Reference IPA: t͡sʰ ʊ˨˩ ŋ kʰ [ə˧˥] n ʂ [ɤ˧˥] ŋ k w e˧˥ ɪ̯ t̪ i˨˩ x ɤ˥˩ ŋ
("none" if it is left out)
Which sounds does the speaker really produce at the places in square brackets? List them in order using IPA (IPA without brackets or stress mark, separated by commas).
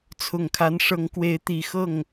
a˧˥, ɤ˧˥